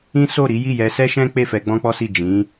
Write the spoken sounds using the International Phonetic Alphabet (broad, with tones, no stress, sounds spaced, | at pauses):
ĩ˦ s o˦˨ ɾ i˨˦ j i˦˨ j ɛ˧ s ɛ˦ ʃ ɛ̃˦ k͡p e˦˨ f ɛ˧ ɡ͡b ɔ̃˦ k͡p ɔ˦ s i˦˨ d͡ʒ ĩ˨˦